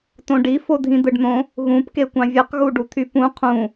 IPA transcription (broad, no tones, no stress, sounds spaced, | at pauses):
t õ ɖ i f o dʱ ĩ d̪ ɯ ɖ n̪ õ | ɣ ũ p k e kʷ ɑ̃ vʲ ɯ q ɣ u ɖ u t̪ʰ y p ũ qʰ ũ